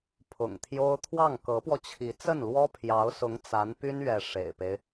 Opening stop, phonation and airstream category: aspirated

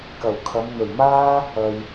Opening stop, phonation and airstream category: plain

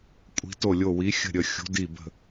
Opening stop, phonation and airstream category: ejective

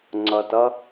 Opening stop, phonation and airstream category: click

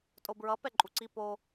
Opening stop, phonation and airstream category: ejective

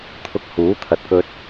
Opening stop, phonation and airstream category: aspirated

